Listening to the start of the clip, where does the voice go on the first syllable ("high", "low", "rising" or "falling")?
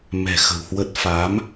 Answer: low